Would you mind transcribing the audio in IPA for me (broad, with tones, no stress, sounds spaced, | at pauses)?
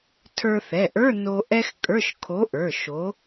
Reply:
tʰ ə˞˧ θ ɛ˩˧˩ ʔ ə˞˧˥˧ n o˧ ʔ ɛ˥ x kʼ ə˞˧˥˧ ʃ kʰ o˨˥ ʔ ə˞˩˧˩ ʃ o˨˥